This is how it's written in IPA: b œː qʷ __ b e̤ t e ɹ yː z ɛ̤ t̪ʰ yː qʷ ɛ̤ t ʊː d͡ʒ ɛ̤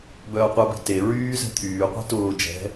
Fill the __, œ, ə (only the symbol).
œ